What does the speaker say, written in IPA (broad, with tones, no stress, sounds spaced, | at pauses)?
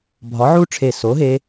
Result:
bʱ ɒ˨˥ ʕ u˦˥ ʈ͡ʂʰ e˧˩ s o˨˥ ɦ e˦˥